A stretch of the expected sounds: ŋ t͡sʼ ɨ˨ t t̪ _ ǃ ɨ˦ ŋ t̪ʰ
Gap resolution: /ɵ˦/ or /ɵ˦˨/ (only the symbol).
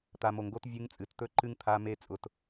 ɵ˦